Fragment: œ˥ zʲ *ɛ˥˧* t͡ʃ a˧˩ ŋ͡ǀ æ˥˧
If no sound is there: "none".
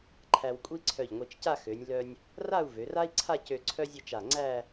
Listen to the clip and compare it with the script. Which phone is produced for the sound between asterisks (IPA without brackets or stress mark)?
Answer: e˥˧